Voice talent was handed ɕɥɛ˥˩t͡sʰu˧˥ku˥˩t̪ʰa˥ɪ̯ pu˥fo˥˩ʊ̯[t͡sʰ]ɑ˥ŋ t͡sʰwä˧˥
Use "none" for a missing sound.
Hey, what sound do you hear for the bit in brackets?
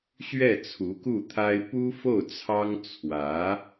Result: t͡sʰ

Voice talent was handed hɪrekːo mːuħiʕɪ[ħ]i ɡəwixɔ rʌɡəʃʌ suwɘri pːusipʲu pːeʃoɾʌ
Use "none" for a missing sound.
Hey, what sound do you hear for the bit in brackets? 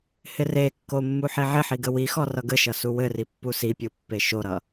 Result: ħ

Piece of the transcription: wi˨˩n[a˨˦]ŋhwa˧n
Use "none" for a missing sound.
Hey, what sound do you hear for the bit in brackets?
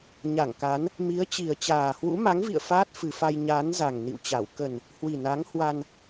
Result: a˨˦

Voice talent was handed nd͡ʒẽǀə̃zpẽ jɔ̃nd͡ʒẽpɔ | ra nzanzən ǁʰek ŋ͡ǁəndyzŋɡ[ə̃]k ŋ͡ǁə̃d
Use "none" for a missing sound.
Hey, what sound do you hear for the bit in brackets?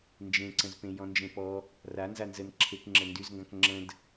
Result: ã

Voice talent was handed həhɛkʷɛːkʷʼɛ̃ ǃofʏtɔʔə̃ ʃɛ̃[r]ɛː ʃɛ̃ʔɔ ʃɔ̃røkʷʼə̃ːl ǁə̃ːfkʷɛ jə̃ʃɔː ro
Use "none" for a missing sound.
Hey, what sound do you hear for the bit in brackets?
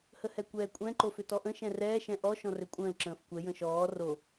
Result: r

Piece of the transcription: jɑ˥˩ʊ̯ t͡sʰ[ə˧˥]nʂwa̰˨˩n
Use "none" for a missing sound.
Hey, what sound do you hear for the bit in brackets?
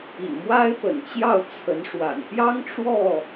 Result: ə˧˥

